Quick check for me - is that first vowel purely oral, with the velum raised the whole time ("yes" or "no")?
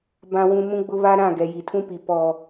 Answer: no